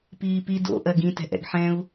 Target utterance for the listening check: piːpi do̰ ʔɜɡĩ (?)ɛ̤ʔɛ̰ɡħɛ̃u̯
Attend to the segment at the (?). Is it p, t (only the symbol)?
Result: t